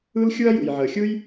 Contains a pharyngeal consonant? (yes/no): yes